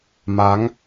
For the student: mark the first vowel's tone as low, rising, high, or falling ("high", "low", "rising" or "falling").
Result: rising